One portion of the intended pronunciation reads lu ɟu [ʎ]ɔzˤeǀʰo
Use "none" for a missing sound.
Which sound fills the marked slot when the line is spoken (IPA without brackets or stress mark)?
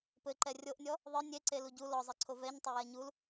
l